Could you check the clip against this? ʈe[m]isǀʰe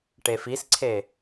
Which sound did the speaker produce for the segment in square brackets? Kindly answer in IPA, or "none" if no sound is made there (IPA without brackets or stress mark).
f